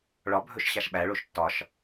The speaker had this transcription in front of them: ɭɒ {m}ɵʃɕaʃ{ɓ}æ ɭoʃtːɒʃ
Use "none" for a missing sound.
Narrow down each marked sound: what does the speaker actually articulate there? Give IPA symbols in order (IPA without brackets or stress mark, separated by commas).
bʱ, ɓ